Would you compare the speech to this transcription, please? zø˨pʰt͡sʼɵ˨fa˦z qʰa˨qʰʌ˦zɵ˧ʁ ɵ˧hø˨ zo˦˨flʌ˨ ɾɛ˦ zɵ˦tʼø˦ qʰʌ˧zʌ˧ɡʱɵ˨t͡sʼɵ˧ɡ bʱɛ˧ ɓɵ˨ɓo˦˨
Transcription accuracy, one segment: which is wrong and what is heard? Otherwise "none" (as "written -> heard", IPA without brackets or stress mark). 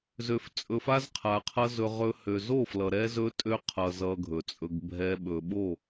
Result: pʰ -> f